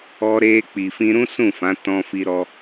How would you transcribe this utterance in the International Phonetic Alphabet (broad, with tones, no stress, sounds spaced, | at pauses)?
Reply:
ɔ˧ ɾ e˧ k͡p i˧ f ĩ˦ ɾ ũ˦ s ũ˦˨ f ã˨˦ t ɔ̃˧ f i˧ ɾ ɔ˦